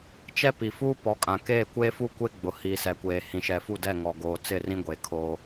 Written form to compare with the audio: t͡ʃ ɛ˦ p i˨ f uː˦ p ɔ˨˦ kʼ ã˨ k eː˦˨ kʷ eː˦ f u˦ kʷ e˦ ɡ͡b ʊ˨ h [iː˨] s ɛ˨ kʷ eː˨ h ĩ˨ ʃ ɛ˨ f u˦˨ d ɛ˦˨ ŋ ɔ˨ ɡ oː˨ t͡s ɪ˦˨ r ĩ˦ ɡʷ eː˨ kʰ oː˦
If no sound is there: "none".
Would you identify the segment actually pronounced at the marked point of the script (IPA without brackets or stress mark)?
iː˨